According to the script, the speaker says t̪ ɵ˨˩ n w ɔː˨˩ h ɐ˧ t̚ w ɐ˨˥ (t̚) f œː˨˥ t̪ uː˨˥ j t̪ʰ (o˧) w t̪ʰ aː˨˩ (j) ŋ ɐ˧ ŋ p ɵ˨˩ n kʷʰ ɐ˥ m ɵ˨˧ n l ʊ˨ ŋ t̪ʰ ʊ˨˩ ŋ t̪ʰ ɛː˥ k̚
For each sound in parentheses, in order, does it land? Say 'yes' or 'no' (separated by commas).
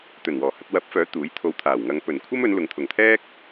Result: no, yes, no